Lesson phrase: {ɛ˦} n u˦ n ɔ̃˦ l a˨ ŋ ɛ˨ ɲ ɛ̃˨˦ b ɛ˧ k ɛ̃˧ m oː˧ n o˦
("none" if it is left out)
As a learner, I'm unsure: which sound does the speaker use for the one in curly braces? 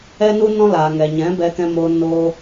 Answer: ɛ˦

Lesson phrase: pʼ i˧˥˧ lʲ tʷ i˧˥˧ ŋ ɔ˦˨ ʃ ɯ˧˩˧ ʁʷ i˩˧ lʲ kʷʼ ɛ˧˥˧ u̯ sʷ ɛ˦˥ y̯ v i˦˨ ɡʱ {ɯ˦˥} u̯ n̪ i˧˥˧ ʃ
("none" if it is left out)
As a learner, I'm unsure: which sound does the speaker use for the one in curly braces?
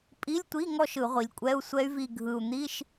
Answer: ɯ˨˩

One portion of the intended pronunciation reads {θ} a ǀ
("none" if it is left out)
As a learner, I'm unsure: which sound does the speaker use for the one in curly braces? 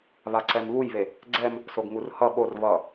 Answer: β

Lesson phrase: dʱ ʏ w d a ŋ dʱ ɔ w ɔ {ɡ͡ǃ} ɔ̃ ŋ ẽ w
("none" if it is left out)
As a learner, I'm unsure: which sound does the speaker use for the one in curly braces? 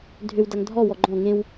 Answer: ɡ͡ǃ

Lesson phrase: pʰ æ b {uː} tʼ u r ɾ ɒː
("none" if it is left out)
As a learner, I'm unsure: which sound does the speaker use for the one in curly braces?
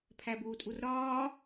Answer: uː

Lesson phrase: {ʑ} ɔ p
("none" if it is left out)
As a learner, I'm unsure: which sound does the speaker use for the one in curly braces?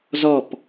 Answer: z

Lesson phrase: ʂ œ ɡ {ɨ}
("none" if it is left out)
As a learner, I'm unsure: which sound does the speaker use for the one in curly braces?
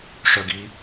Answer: i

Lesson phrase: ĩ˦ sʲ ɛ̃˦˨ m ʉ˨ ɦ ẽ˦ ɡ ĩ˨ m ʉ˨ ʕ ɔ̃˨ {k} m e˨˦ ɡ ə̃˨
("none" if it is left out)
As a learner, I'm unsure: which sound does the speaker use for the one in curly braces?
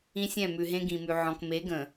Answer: k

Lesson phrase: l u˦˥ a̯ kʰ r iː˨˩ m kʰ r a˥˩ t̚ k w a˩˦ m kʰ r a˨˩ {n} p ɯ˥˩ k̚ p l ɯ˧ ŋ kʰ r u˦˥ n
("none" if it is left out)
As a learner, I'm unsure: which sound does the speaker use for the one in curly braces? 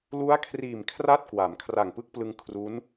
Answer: ŋ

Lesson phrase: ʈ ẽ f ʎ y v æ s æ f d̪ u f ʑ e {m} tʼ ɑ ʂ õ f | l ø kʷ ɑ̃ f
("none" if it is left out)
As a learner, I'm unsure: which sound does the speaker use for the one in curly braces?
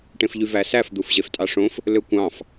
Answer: f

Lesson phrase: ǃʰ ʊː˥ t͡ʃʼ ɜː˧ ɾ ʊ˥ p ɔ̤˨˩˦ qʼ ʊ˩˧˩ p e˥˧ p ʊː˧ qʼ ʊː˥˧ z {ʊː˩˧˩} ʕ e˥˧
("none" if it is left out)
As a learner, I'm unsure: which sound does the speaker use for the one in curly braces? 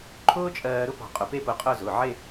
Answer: ʊː˩˧˩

